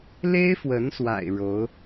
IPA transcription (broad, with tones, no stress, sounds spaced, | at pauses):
l e˥ ɪ̯ f w ə˧˥ n s w a̰˨˩ ɪ̯ ɻ o˧˥ ʊ̯